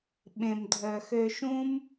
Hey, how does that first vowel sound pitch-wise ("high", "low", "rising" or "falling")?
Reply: low